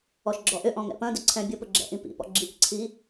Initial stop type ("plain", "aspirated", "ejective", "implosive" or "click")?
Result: click